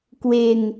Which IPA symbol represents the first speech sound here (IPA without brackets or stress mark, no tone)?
k